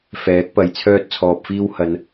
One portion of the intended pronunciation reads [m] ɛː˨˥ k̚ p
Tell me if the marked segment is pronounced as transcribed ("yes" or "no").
no